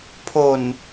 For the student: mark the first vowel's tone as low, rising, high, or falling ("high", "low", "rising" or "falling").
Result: low